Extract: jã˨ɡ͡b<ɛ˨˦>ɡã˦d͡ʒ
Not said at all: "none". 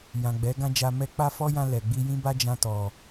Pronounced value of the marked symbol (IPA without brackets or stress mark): ɛ˨˦